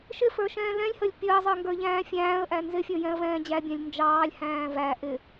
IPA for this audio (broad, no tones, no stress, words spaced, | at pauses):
ʃɪfə˞ ʃɛ̃ːlɛ̃lʲhəlʲ pʲəːzˤə˞ŋɡə˞ʎæ̃ː fʲæ̃ːə̯ʔæ nzɪfʲə˞jɛ̃ə̯vɛ̃ː d͡ʑæbʲæ̃lʲ nd͡ʒɑːlʲ hæ̃ːvæ ʔɪ